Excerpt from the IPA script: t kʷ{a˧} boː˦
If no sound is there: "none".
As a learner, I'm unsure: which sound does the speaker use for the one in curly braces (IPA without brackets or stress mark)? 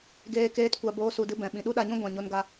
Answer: a˧